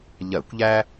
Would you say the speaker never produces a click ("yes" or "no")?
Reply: yes